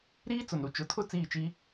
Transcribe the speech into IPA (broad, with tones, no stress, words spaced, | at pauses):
ɾiː˦ t͡sʊ˨nɾu˨ t͡ʃʊ˨tʰʊ˦˨ t͡siː˦˨t͡ʃi˦